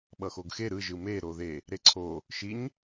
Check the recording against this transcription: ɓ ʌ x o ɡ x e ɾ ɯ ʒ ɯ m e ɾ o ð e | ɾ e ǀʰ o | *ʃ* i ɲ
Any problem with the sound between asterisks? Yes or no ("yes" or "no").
no